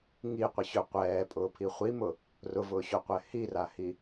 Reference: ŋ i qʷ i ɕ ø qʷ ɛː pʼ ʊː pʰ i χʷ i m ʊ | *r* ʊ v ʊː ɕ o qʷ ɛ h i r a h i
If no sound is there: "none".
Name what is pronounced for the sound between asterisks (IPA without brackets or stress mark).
r